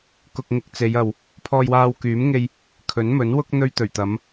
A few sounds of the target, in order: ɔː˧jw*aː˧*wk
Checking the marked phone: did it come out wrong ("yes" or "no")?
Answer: no